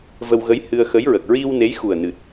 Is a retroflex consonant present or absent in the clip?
absent